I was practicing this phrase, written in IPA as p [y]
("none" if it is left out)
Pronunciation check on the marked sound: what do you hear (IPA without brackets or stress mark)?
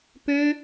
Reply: ø